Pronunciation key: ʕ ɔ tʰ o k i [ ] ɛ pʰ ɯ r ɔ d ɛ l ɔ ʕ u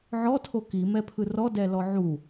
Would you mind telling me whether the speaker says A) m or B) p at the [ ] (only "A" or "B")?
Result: A